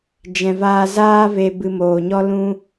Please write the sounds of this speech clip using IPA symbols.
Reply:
d͡ʒ ɛ̃˨ v aː˧ z aː˦ v e˧ b ɨ˧ m oː˨ ɲ ɔ˦ l ũ˦

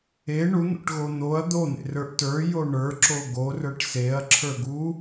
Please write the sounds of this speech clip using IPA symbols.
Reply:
e ɳ u n̪ o̰ ʈ ɣ o n̪ o ɐ̯ d̪ o n̪ ḛ r ə˞ ʔ t ə˞ j o ɳ ə˞ ǁ o ɡ o r ə˞ ʈ s e ɐ̯ ǁʰ ə˞ ɡ u

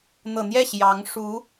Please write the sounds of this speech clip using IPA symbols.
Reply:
n̪ ɤ˨˩ n̪ j ɛ˥˩ ɕ j ɑ˧˥ ŋ ʂ u˧˥

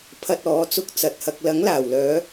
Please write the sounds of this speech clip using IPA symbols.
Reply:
pʰ ɐ˧ t̚ ɔː˨˥ t͡s ʊ˧ k̚ t͡s ɐ˨ t̚ h ɐ˧ k̚ l ɐ˨˥ ŋ l aː˨˩ w l œː˨˧

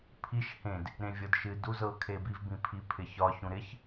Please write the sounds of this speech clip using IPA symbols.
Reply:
pʰ i ʃ h ẽ d | ɾ ẽ vʲ ɤ d ʃ ɨ d u z ɤ kʰ e b i v b ĩ pʰ i pʰ ɪ ç ɒ ç ũ ɾ ɪ ç

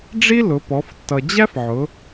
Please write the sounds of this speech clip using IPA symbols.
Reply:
ɖ͡ʐ i˥ l ʊ˩˧ p ɔ˩˧ f tː ʌ˩ d͡ʑ æ˥ f ʕ ʊ˩˧

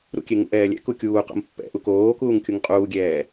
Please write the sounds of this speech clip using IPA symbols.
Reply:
ɾ ṵ kʲ e ŋ ṵ ʔ ɛː lʲ ɛ̰ k u kʲ uː q o̰ m pː ɛ̰ ʔ u k oː k uː ŋ kʲ u ŋ qʼ uː ɡʲ ɛː

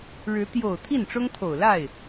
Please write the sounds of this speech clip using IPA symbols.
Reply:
ɻ ɻ̩˧˥ t̪ j o˨˩ ʊ̯ t̪ʰ i˥˩ n ʈ͡ʂ ʊ˥ ŋ t̪ʰ o˨˩ ʊ̯ l a˥˩ ɪ̯

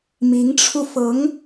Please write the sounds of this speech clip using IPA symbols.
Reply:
m i˧˥ ŋ ʈ͡ʂʰ u˧ f ɤ˧˥ ŋ

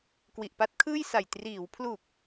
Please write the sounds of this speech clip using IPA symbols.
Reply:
k w i˨˩ ʔ p a˦˥ t̚ kʰ ɯː˥˩ j s a˨˩ j t r iː˩˦ w pʰ l u˨˩ k̚

